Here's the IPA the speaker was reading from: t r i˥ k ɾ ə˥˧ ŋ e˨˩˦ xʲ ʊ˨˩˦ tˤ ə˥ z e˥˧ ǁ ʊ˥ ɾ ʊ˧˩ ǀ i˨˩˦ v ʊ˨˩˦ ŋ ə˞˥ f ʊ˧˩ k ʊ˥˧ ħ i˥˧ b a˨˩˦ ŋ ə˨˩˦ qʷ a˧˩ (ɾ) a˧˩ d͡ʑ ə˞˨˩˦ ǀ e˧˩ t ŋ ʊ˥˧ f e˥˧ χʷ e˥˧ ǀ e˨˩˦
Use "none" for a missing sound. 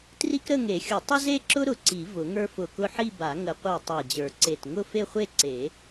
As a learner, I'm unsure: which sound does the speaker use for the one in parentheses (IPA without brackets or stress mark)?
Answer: tˤ